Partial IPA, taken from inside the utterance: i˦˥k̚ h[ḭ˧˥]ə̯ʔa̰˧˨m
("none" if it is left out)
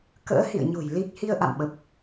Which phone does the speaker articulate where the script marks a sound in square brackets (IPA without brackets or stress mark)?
i˧